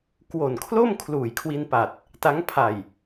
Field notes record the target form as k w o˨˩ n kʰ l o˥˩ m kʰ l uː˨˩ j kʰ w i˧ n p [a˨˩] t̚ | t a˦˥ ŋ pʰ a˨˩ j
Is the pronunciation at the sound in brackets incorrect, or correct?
correct